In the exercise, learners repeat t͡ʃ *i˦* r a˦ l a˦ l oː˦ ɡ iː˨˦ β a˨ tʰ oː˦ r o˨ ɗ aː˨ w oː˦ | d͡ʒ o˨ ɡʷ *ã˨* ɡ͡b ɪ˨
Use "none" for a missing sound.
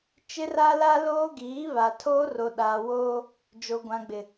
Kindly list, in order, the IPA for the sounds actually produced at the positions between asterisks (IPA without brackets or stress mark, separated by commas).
ɪ˦, ã˨